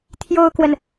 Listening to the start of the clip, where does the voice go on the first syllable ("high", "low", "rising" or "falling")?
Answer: high